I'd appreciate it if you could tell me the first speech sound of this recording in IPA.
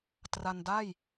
t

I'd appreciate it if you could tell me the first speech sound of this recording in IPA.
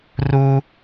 r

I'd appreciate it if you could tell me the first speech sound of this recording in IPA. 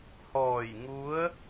h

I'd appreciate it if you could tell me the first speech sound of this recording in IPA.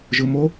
ʒ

